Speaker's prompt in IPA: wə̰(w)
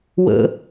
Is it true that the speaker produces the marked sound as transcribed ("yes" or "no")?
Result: no